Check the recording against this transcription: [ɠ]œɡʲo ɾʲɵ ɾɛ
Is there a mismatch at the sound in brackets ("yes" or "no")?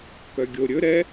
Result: yes